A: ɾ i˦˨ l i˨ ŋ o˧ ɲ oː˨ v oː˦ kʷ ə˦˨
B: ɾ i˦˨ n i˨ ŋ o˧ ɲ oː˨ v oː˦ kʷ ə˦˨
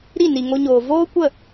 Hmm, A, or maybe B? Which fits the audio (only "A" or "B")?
B